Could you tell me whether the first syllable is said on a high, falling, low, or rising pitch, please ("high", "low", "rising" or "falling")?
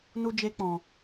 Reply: high